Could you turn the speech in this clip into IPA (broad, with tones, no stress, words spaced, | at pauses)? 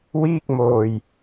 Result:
wiː˥˩k̚moː˧j